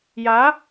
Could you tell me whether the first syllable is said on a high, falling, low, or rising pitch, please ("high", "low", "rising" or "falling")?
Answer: rising